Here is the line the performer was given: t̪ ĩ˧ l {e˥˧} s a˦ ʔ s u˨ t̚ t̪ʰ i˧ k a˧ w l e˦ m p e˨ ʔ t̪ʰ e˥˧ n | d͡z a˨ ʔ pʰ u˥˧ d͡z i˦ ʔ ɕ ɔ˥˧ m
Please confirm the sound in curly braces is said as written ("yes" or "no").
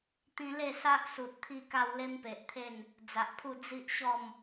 yes